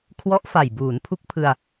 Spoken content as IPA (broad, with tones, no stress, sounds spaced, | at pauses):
kʰ w ɔ˦˥ ʔ f a˨˩ j b uː˩˦ n pʰ u˦˥ k̚ pʰ ɯ˧ a̯